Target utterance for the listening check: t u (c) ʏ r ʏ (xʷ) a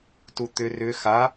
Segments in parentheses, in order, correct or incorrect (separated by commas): incorrect, incorrect